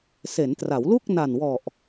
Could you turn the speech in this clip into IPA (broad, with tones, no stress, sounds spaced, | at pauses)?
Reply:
s e˩˦ n t r a˩˦ w l u˥˩ k̚ n a˨˩ n w ɔ˨˩ ʔ